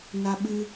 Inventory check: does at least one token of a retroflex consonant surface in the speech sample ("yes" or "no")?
no